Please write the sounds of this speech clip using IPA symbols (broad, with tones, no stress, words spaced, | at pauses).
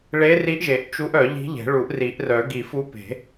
ɭe˧˥ri˧˥ʔʒe˨˩˦ʔ t͡ʃu˧˥ʔœ˨˩˦ ʎi̤˧˥ʎe̤˨˩˦ ɭu˨˩˦ʔri˨˩˦ʔrœ˨˩˦ ɡi˨˩˦fu˧˥pe̤˨˩˦